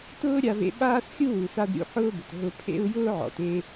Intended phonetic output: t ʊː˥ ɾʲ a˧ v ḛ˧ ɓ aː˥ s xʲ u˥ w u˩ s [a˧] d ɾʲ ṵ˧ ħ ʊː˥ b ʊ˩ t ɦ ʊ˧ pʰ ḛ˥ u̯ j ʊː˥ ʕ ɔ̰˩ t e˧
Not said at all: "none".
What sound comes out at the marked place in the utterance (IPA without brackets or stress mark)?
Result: a˧